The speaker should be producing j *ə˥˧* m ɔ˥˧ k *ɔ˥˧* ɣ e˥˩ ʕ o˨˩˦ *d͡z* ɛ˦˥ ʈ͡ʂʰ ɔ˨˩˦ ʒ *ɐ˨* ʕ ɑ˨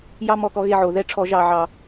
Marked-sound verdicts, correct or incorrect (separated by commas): incorrect, correct, incorrect, incorrect